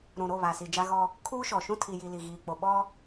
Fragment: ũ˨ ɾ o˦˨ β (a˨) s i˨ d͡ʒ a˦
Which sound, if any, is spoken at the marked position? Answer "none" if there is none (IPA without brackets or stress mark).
a˨